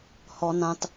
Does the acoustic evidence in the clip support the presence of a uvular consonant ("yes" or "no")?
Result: no